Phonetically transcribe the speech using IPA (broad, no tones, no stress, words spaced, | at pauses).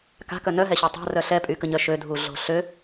ka̤kœ nœɦɛɕø tˤa̤rœ ɬɛpʼykəɲœ ʃødʱuɮo̤ ɬø